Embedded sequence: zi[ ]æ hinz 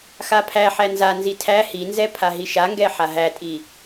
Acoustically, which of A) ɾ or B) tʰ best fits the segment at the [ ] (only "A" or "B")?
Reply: B